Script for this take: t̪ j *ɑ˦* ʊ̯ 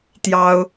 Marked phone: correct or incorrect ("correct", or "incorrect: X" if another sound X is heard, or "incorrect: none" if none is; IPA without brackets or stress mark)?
correct